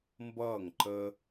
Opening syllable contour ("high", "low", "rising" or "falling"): falling